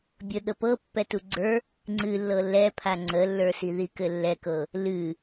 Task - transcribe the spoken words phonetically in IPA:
bʲ ə ɠ ə p ɤ pː ɛ t u ɡ͡ǀ ə˞ | ŋ͡ǀ ɨ lː ɤ l ɛ pʰ a ŋ͡ǀ ə lː ə˞ s i ð i k ɘ lː ɛ k ɤ | l ɨ

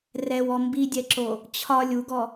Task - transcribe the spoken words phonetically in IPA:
r ɛ w ɔ m b i dʲ ɛ ǁ o | t͡ɕʰ ɒ lʲ u ɡ ɔ

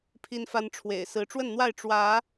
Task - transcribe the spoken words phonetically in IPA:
pʰ i˦ n f a˦ n ʈ͡ʂʰ w ḛ˨˩ ɪ̯ s ɹ̩˨˦ ʈ͡ʂ w ə˥˨ n n̪ w a˥˨ ɪ̯ ʈ͡ʂ w ä˨˦

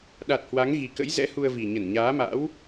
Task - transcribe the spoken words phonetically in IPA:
ɗ a˨˩ t̚ h w a˨˦ ŋ ɣ i˨˩ k ə̰˧˥ j z ɛ̰˧˥ h u˧ ə̯ v i˨˩ ɲ ə˧˩ n ɲ aː˨˦ m a̰˧˥ w

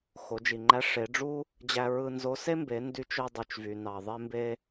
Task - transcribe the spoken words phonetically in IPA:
x o˩˧ d͡ʒ i˩ ŋ͡ǃ æ˧˥ ʂ e˩˧ ɖ͡ʐ u˥ | d͡ʑ æ˧ ɹ ɯ˧ n z o˧˥ s e˥ m b e˩˧ n d y˧˥ t͡ʃ ø˧ dˤ y˩ t͡ʃ v y˩ n ɑ˩ ðˤ e˧ m b e˧

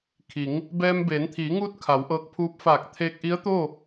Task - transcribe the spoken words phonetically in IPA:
kʰ i˩˧ ŋ | b ɛː˧ m b eː˩˧ n t̪ʰ iː˩˧ ŋ uː˧˥ t̚ kʰ a˩˧ w ʔ ɤː˧ k̚ pʰ uː˧˥ p̚ f aː˧˩ k̚ t̪ʰ eː˧ k̚ ʔ i˧˥ ə̯ t̪ o˥˨

